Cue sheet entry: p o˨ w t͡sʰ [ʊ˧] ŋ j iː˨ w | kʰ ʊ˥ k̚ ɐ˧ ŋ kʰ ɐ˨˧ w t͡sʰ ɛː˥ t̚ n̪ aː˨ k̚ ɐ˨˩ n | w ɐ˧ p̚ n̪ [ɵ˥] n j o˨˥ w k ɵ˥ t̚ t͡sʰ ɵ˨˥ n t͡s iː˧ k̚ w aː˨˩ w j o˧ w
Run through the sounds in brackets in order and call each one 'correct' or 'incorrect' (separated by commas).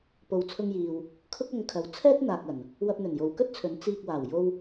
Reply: correct, incorrect